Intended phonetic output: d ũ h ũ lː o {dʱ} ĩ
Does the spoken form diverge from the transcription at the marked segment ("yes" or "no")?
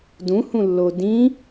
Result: yes